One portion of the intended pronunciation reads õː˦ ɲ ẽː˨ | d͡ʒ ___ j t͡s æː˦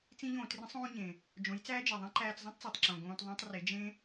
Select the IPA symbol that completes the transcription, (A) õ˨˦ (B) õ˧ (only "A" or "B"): A